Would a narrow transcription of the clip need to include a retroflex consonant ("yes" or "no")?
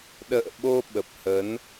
no